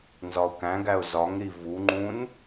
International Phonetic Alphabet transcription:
nzɒʊ̯kæ̃ɡæʊ̯ zɒŋɾi vuŋ͡ǃũn

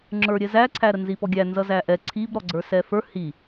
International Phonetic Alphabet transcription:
ŋ͡ǁə˞ɾʲɛzæǀʰæ ɾənzipɔɡʲæ nzʌzæʔɛ ǀʰib ɾɔɡ͡ǀə˞sɛfə˞ hi

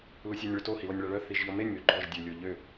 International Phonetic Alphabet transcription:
lusʲanʲɭøto hilɔnʲɭaɭœ θiʒʎɔmenʲ møɡ͡ǃɔʒ dʲø lʲoʎø

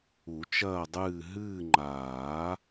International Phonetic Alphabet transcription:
u˨˩˦t͡ʃɐː˦˨dˤɨː˦˨ ɦɨː˦˨ŋ͡ǃaː˨˩˦

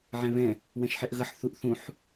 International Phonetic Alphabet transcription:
ʕɛ̃βɛ̃ | wɛ̃ʃħɛʔɣʌħ θuʔθũħ

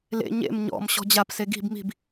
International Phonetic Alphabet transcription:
lḛ ɲḛm ɲɔ̰m ɕɔ̤d͡ʑapse ɡi̤b mi̤b

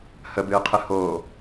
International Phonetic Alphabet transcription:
həbɨːqʰɨ hoː

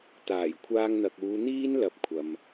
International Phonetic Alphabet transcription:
t̪aː˨˩jkʷʰaː˧ŋn̪ɐ˨k̚uː˨˧ n̪iː˥n lɐ˨˥p̚kʷʰɐ˨m

